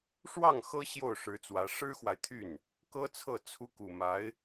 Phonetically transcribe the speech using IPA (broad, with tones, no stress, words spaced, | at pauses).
ʂwɑ˥˩ŋ xɤ˥ ɕjo˥˩ʊ̯ʂɻ̩˧˥t͡swä˧˥ ʂɻ̩˥xwa˨ɪ̯t̪ʰy˥˩n | kɤ˥t͡sʰɤ˥˩ t͡sʰu˧˥ku˨˩ma˧˥ɪ̯